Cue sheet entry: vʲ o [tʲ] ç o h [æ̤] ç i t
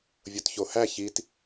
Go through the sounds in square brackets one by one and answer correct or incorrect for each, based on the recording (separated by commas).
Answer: incorrect, incorrect